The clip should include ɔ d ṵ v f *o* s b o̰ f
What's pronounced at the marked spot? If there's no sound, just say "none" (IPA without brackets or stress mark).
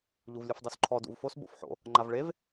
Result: o